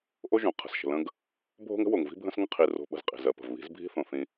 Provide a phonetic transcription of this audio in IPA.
ʔ o˦ ʒ õ˨ qʰ ə̤˨ s ʃ ə̤˨ l ə̃˦ ɡ | bʱ o̤˦ ŋ ə̤˦ w o˨ ŋ v i̤˦ bʱ ə̃˦ s ŋ ə̃˦ qʰ i˨ r o̤˨ ɓ ə̤˨ z qʼ i̤˨ z ɜ˨ p ə̤˨ v β i̤˨˦ z bʱ i̤˦ θ õ˨ θ ĩ˦

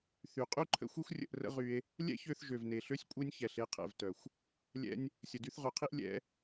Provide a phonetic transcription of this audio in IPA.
θ y˨ qʼ y˦ ǃʰ ə̰˧ xʷ e˦ xʷ rʲ ə̰˧ ʔ r ə̰˦ ʁ y˧ e̯ | lʲ ɛ̰˦ ç ø˧ θ ʒ ø˨ v n e˨ ɬ ø˦ sʲ kʷʼ e˦ nʲ ç ɛ˨ ɬ e˨˦ qʰ ɛ̰˨ v t œ˨ xʷ | lʲ ɛ̰˧ nʲ | sʲ ə˨ d y˧ θ ʁ œ˨ qʰ i˦ ʔ lʲ ɛ̰˨˦

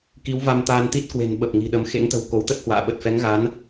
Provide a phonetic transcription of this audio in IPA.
k i˨˦ w v a˧ m t̪ aː˧ n t̪ i˦˥ t̚ k w e̤˨˩ n ɓ ə˨˩ p̚ ŋ i̤˨˩ ɗ ə˨˦ m x ḛ˧˥ ŋ t̪ ə̤˨˩ w k o˨˦ w t̪ ə˦˥ t̚ h w a̰ː˧˨ ɓ ə˨˩ t̚ f ɛ˨˦ ŋ ɣ a˨˦ n

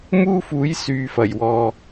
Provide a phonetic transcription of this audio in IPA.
m uː˥ f uː˨˥ j s yː˨ f ɐ˨˩ j w ɔː˨

